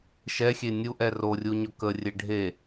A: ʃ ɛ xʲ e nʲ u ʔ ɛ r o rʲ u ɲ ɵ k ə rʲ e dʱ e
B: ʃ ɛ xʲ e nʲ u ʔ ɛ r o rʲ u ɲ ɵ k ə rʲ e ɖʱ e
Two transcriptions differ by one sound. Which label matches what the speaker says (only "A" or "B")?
B